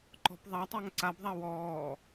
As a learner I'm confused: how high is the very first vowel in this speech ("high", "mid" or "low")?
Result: mid